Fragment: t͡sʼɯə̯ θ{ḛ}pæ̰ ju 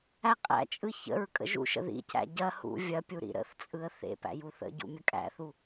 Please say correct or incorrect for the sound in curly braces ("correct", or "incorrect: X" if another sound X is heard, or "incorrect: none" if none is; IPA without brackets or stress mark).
correct